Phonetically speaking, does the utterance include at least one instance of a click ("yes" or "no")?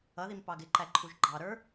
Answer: yes